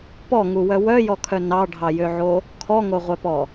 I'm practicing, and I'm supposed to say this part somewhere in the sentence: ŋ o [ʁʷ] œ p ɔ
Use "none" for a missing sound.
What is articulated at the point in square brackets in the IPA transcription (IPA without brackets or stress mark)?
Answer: ʁʷ